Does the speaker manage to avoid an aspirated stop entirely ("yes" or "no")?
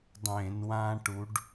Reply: yes